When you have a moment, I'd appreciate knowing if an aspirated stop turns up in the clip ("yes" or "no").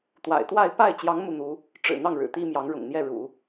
no